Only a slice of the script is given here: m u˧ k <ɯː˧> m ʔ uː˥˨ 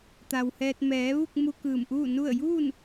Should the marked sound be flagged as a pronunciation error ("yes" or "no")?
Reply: yes